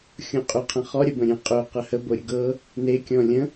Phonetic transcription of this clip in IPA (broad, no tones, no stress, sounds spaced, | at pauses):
xʲ õ qʼ ʏ qʰ ə̃ χ ɔ ɾʲ ə b ə̃ ɾʲ ẽ qʼ ø q ə h ə b o ɾʲ ə ɡ ɤ | n e kʲ ɔ̃ lʲ ə̃